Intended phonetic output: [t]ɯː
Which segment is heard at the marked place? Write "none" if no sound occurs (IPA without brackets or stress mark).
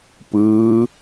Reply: p